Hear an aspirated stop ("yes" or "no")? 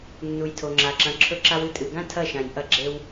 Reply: yes